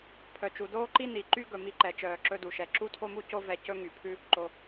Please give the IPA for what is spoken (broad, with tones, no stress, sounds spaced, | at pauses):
pʰ œ˩ t͡ʃ u˩ d oː˥ ǃ i˥ n i˩ ǃ y˥ ɡ ɵ˩ m i˧ ǃ ɛ˩ t͡ʃ œː˩ ǁ ɵ˧ d u˩ ʃ ɛ˩ ǁ u˥ tʰ o˥ m u˥ c o˥ v ɛ˧ c ɵ˥ ŋ y˩ pʰ ʉ˥ | ǃ o˩